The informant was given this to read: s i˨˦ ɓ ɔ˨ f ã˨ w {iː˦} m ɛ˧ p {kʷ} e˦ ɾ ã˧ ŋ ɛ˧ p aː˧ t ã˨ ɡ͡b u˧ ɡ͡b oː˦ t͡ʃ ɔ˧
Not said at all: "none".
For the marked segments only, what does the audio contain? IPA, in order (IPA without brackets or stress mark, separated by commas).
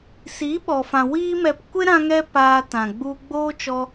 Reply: iː˦, kʷ